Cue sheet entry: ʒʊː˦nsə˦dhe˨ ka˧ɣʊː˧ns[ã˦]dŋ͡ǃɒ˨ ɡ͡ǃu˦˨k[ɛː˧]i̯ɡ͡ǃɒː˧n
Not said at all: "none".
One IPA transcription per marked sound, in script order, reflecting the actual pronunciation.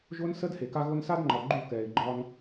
a˦, ɛː˨

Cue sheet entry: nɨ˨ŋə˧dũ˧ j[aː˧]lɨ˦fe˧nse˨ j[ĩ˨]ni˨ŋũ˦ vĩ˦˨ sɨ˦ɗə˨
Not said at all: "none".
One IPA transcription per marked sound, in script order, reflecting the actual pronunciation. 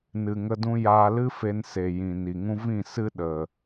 aː˧, ĩ˨

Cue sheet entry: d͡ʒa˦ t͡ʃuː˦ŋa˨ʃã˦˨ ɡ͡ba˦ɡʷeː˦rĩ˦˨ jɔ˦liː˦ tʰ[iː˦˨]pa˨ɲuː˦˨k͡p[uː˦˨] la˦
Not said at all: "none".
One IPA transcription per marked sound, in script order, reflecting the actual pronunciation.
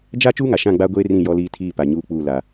iː˦˨, uː˦˨

